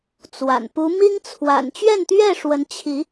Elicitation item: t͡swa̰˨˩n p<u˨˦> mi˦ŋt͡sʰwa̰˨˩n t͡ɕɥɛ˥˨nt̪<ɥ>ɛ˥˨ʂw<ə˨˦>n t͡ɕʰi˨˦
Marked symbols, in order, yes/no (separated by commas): yes, yes, yes